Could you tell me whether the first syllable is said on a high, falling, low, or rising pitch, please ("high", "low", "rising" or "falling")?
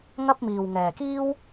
high